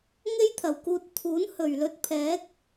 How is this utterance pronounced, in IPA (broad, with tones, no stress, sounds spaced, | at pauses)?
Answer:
ŋ e˥ j t̪ʰ ɐ˨˩ w k uː˧ t̚ t̪ʰ uː˨˥ n h ɵ˨˩ ɥ l ɵ˧ t̚ pʰ ɛː˨˥ k̚